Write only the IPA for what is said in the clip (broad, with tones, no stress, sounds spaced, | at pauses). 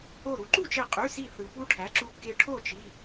o˧˩ ɾ u˩˥ ǃ u˥˩ t͡ʃ e˧˩ qʼ y˩˧˩ s i˧˩ θ ɯ˩ p u˧ ʈʰ æ˩˥ ǁ u˧ kː e˧ ʈʰ o˥˩ t͡ʃ i˩˧˩